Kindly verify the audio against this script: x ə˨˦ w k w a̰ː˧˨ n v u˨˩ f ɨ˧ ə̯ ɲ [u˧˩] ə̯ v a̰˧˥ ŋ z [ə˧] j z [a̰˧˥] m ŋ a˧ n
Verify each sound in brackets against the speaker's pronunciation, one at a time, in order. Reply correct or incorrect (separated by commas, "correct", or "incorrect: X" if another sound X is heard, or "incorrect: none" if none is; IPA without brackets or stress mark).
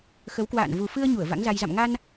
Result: correct, incorrect: a˧, incorrect: a̰˧˨